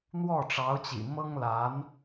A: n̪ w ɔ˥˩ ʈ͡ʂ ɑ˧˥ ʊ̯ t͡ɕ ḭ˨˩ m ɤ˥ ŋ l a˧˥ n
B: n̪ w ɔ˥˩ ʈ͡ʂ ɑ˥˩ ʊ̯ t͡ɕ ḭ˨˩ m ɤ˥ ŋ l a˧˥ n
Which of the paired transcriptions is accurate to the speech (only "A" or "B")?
A